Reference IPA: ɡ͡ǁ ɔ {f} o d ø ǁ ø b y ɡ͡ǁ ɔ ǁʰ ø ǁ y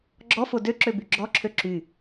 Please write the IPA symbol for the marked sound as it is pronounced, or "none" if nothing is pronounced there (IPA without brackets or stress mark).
f